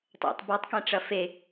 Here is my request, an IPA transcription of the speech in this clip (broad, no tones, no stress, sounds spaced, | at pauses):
tˤ ɛ̰ tˤ b ɤ tˤ k ɛ̃ ʈ͡ʂ ɐ f e